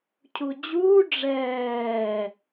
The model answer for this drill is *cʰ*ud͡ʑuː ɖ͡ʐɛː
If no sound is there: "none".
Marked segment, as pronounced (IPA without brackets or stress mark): cʰ